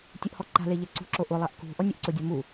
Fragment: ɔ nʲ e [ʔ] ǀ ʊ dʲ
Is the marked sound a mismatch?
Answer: no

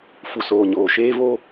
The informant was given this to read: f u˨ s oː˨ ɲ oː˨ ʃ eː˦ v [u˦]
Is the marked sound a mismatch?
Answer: yes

